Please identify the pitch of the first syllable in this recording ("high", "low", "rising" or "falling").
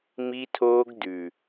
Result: high